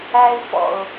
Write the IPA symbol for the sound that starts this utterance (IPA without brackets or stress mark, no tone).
æ